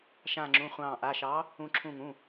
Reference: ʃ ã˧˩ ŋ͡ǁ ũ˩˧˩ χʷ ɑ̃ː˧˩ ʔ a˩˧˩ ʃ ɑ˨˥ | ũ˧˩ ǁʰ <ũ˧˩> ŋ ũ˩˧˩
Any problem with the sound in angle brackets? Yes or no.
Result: no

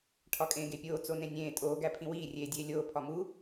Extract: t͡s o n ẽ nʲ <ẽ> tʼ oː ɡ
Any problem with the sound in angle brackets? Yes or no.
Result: yes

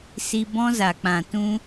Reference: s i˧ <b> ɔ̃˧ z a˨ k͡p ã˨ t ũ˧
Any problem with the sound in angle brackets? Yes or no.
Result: no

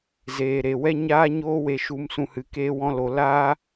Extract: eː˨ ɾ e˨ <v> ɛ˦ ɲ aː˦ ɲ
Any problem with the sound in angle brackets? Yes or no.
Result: yes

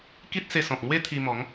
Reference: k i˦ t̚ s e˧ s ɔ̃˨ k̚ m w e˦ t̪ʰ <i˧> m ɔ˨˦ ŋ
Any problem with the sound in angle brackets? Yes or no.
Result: no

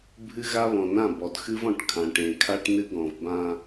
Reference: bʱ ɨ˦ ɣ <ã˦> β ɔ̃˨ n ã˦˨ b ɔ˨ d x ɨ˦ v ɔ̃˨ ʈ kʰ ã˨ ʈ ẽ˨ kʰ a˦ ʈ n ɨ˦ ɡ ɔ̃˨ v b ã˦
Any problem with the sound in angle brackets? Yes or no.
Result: yes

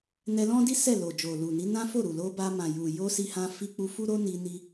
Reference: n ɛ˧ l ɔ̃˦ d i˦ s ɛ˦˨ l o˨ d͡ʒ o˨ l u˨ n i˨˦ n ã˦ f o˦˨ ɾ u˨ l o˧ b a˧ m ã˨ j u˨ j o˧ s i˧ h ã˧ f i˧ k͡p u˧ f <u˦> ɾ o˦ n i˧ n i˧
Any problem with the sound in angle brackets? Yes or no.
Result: no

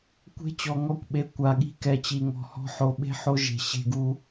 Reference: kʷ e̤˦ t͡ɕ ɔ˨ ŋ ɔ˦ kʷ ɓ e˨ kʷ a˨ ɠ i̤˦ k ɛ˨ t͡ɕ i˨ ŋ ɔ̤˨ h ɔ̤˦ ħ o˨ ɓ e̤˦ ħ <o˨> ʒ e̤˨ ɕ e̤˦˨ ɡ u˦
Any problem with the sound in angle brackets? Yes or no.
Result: yes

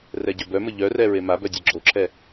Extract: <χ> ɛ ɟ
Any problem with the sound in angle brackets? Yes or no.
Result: yes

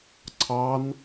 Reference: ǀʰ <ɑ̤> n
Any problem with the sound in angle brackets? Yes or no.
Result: yes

